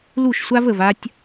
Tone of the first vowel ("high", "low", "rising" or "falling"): falling